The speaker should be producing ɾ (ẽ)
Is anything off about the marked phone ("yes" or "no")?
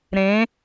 no